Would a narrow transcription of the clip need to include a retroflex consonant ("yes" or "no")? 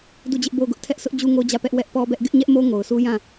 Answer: no